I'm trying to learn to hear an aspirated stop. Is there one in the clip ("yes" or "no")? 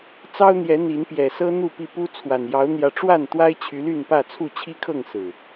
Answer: yes